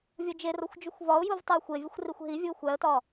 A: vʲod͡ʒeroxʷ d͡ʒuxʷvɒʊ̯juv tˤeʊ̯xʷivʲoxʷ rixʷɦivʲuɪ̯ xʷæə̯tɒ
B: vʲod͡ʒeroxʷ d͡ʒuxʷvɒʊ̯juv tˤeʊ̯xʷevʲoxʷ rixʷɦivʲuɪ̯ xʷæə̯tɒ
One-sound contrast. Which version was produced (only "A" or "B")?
B